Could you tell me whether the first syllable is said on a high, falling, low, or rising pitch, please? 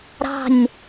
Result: falling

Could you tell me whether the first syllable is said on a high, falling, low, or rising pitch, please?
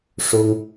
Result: high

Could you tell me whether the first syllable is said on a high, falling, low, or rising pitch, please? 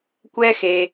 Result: high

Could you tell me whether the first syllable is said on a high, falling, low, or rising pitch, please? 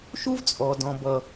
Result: high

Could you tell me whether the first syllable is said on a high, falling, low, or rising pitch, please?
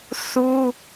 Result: high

